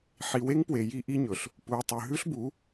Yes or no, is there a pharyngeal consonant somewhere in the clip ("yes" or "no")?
yes